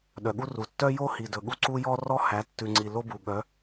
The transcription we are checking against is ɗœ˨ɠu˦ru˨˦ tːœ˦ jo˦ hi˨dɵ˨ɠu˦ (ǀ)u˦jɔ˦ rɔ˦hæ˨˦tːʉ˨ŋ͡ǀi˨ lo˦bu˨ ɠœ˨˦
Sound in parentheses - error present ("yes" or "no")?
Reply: no